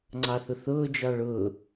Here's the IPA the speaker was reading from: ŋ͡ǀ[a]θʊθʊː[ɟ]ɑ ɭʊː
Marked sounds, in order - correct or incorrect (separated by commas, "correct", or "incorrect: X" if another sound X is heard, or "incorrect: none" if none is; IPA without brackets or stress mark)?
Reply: incorrect: ɑ, incorrect: d͡ʒ